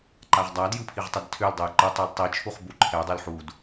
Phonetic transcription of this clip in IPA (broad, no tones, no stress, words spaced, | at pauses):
ǃaʁdˤadjɯ pʰiʁtˤɛdtʰøldˤuj ǃɯtˤul tˤit͡ʃʰuχ buǃʰɛdˤøl ħud